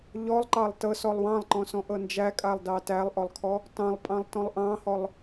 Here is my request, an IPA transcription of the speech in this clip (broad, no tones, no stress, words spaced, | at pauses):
ʎɔlˠǃɑlˠ tɤsɔlˠ wɑ̃lˠǃɔ̃sɔ̃ʔɤ nd͡ʒækʼalˠdɑ tælˠʔɔlˠkʰɔ | tɑ̃lˠpʼɑ̃lˠtɔ̃lˠ ʔɑ̃hɔlˠ